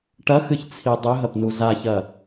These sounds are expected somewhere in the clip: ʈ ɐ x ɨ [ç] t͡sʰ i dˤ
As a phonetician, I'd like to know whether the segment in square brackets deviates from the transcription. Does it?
no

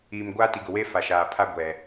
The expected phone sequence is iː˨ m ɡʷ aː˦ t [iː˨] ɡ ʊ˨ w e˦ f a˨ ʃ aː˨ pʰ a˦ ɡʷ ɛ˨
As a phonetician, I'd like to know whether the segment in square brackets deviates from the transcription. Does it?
yes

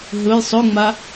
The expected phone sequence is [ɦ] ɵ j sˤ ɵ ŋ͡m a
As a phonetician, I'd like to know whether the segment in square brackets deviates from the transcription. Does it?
no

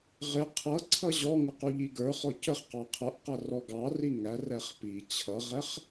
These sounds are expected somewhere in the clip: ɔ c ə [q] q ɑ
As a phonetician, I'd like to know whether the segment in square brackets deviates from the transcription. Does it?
yes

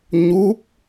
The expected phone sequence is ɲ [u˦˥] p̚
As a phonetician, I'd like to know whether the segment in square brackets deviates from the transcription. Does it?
no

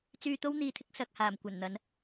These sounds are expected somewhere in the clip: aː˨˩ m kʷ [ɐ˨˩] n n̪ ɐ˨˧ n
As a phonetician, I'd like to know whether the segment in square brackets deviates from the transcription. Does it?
no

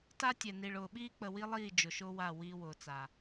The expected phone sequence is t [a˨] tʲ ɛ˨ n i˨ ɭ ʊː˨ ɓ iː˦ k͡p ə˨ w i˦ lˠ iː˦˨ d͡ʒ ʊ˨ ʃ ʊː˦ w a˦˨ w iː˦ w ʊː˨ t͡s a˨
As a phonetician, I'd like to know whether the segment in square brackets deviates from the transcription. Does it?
yes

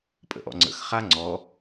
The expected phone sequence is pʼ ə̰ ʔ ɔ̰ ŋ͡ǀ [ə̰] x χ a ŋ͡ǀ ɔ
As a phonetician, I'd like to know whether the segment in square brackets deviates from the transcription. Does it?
no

